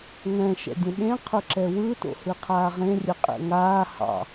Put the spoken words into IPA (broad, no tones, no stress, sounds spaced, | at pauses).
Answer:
ŋ ɛ̃ ʃ ɛ̰ dʲ ə̃ ɓ ẽ qʰ ʊ ǁ ɛ w ɯ t o̰ h ɯ qʰ aː ʁ ẽ rʲ ə qʼ ɛ̰ ŋ aː h ɑ̰